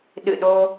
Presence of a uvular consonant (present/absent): absent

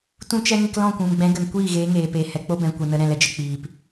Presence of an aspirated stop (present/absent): absent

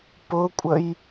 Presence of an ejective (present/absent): present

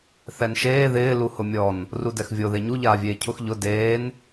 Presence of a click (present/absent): absent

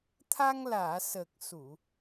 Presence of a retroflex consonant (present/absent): absent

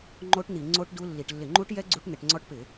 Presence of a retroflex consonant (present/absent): present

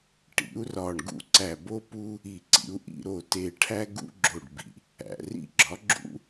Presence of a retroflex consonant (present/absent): present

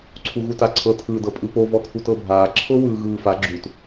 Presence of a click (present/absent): present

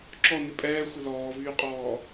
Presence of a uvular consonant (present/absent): present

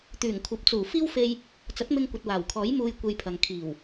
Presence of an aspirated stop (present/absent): present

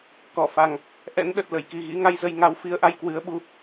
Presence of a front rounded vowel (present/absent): absent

